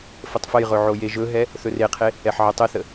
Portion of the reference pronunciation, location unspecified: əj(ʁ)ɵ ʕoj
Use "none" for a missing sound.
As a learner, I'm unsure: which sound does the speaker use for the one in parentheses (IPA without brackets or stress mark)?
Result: ʁ